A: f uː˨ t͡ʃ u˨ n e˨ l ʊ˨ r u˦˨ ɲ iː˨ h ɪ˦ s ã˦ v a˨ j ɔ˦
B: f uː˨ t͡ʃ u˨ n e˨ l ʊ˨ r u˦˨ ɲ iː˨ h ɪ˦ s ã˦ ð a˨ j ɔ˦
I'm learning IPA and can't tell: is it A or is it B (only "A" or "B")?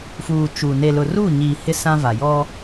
A